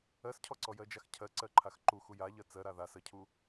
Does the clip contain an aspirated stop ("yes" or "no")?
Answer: yes